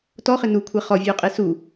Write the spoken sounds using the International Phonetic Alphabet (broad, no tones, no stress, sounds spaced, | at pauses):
t ɔ χ ɪ n u kʷʰ ɛ χ ɔ vʲ ʉ u̯ qʼ e s u